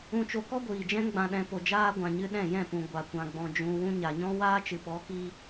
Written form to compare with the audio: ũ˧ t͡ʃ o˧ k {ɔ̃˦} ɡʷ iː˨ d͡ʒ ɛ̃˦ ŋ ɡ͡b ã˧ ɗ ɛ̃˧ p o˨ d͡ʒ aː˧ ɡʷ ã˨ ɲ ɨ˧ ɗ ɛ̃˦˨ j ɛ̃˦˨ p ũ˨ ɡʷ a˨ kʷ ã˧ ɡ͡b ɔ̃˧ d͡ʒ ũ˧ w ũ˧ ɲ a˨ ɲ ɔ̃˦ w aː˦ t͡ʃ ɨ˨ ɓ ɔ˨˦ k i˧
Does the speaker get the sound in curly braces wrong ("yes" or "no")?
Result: yes